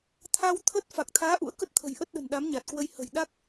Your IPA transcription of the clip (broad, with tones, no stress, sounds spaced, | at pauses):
t̪ʰ a˧ w t̪ʰ ə˦˥ t̚ f a˨˩ k̚ t̪ʰ aː˨˦ ʔ ṵ˧˥ ə̯ k ə˦˥ t̚ t̪ʰ ə̤˨˩ j ʔ ə˦˥ t̚ ɗ ə̤˨˩ n ɗ a˨˦ m ɲ a˨˩ t̚ k w ə˧ j h ə̤˨˩ j ɗ a˦˥ k̚